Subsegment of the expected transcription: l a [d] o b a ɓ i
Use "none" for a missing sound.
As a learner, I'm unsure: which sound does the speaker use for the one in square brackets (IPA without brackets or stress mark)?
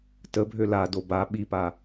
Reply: d